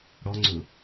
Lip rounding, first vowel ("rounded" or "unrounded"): rounded